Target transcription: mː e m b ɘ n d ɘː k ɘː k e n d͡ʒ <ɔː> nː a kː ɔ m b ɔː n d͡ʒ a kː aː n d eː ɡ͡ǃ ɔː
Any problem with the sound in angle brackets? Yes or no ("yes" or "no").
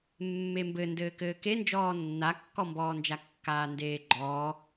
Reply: no